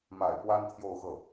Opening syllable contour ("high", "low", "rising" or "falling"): low